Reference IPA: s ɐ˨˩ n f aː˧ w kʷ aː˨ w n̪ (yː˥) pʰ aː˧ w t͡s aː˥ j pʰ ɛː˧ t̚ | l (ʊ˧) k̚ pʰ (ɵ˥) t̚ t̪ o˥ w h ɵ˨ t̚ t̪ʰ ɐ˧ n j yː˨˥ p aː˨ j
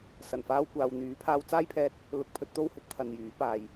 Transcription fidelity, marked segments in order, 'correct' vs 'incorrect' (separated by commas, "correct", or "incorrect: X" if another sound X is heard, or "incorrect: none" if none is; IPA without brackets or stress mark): incorrect: yː˨˥, correct, incorrect: ɵ˨˥